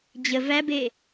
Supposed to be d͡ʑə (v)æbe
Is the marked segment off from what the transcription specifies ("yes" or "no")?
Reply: no